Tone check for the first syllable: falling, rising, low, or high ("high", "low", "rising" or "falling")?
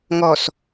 low